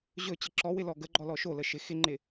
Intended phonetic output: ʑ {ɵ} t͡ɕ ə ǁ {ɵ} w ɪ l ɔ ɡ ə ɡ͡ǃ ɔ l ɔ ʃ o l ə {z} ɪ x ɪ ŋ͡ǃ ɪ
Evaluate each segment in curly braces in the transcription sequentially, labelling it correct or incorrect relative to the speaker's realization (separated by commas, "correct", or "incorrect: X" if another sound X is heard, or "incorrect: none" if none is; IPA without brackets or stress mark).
correct, incorrect: ɔ, incorrect: ʃ